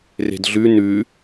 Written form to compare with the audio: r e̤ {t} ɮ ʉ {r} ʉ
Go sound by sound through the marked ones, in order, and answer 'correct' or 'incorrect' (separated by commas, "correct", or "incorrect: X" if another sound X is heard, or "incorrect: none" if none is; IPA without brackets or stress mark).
incorrect: d, incorrect: n